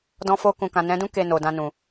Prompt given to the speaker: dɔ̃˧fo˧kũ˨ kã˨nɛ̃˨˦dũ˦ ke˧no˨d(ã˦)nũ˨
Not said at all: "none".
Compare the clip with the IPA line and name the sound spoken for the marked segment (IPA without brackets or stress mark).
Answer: ã˧